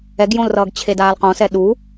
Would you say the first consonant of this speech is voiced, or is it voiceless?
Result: voiced